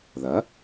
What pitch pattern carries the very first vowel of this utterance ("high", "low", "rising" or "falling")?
rising